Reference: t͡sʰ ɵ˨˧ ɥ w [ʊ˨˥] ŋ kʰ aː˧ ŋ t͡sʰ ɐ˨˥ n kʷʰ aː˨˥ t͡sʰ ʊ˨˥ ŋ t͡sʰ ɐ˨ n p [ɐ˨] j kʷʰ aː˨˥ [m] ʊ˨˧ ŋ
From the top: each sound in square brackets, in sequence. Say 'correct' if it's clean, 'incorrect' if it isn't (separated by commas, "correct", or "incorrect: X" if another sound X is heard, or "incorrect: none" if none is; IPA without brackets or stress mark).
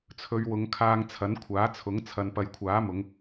incorrect: ʊ˨˧, correct, correct